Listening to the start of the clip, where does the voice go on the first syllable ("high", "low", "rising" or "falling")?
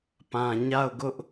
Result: low